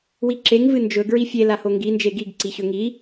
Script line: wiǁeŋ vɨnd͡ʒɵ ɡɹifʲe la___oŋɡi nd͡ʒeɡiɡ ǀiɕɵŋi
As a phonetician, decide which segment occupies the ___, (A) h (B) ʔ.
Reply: A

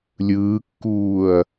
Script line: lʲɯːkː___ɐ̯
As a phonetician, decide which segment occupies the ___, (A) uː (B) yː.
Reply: A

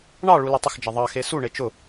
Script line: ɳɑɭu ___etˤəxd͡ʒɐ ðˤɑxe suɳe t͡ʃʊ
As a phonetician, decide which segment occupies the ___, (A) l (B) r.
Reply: A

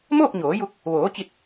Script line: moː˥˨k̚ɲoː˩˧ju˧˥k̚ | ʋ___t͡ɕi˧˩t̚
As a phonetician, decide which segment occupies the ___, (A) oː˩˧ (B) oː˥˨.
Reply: A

